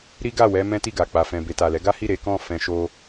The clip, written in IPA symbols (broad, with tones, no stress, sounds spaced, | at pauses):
ɾ i˦ ɡ a˦˨ w ɛ˧ m ɛ̃˦ t i˦˨ ɡ a˨ k͡p a˨ f ɛ̃˨ b e˨ t a˨ l ɛ˨˦ ɡ a˦ h i˦˨ ɾ e˨˦ k ɔ̃˦˨ f ɛ̃˧ ʃ o˧